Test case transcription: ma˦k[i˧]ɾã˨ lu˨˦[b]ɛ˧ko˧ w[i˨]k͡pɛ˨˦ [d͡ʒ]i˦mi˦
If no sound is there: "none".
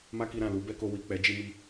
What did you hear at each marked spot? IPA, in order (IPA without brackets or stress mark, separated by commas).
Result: i˧, b, i˨, d͡ʒ